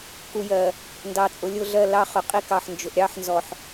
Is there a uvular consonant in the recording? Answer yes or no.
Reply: yes